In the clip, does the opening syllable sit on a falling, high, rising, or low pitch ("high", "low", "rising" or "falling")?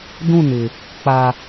falling